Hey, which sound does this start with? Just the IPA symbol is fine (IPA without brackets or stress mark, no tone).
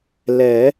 l